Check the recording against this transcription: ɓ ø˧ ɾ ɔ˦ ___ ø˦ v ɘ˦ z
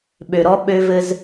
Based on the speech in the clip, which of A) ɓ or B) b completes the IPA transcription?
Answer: A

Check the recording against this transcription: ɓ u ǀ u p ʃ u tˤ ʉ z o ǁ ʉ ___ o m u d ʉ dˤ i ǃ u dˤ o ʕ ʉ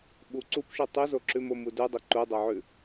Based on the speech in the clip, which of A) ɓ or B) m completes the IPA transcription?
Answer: B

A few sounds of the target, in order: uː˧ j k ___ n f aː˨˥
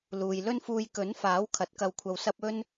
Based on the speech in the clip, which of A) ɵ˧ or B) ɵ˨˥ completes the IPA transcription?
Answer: B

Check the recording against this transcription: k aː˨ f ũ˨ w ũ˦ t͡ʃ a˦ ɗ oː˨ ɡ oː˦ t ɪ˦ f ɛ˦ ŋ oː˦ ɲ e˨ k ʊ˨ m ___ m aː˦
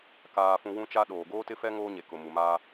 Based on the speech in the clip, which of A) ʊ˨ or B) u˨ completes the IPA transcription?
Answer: B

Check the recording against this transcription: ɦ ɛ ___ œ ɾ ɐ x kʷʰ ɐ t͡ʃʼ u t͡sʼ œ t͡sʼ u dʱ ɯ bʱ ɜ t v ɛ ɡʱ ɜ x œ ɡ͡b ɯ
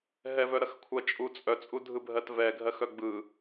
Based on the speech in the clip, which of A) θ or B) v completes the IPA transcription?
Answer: B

